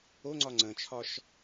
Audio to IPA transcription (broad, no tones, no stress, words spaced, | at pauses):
oŋ͡ǀɒ ŋ͡ǀə̃t͡ʃʰɒʃ